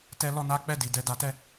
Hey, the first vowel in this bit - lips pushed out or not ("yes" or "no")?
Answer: no